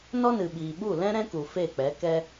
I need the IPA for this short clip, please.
n ɔ˦ n ɨ˨ ɓ iː˨ ɓ u˦˨ l ɛ̃˦ ɾ ɛ̃˦ k u˨ f e˦˨ k͡p ɛ˨˦ k ɛ˦

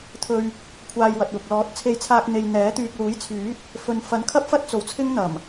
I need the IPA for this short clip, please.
t̪ʰ ɵ˧ ɥ | kʷʰ aː˧ j w ɐ˨ t̚ w ʊ˨ k̚ l ɔː˨˥ t̚ t͡sʰ e˧ j t͡sʰ aː˧ k̚ n̪ e˨ j n̪ ɛː˨˥ t̪ yː˧ k̚ l uː˨˥ j t͡sʰ yː˨˥ t̚ | f ɵ˨ n f ɐ˨˥ n kʰ ɐ˥ p̚ f ɐ˥ t̚ t͡s o˨˧ w t͡sʰ ɪ˥ ŋ n̪ ɐ˨˩ m

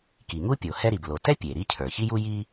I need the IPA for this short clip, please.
k i˩ ŋ u˥ pʲ o˩ h ɛ˥ ɾ i˩ b l o˩ t ɛ˥ pʲ e˩ ɾ i˥ cʰ ə˞˩ ç i˥ j u˥ j i˥

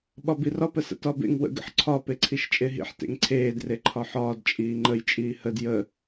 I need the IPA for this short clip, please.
ɓ ɒ b i r ɒ p ə s ə̰ t ɒ b ḛ ŋ w ə̰ ɡ ə̰ ħ ǀʰ ɒ p e ǀʰ i ʃ t͡ʃʼ e ɦ ḭ ħ t ḛ ŋ ǀʰ eː d r e ǃʰ ɒ ħ ɒː d t͡ʃʼ iː ŋ͡ǃ ə j t͡ʃʼ iː h ə d j ə

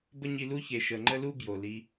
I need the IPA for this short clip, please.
b ə˦ ɲ i˧ l u˦ ç e˨ ʃ ə˨ ŋ͡ǃ ə˦ l u˦ b j o˨ l i˧

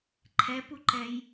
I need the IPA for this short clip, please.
ǃʰ ɛ p u ǃ ɛ j

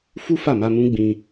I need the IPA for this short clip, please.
f u˦ f a˦˨ m a˧ m ũ˦ ɡ͡b ĩ˧

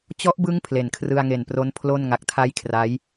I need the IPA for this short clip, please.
t͡ɕ ɔ˦˥ ʔ b ɯ˦˥ ŋ pʰ l e˨˩ n kʰ r ɯ˧ a̯ ŋ e˨˩ n p r o˦˥ n pʰ l o˥˩ n ŋ a˨˩ k̚ tʰ a˦˥ j kʰ r a˦˥ j

